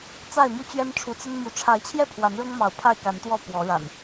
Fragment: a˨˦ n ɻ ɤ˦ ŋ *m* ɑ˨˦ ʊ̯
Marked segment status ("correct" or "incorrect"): correct